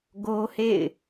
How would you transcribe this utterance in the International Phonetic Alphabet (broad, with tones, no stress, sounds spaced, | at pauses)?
ɡ o˦ h ḛ˦˨ ɪ̯